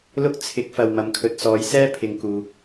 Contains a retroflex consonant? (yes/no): no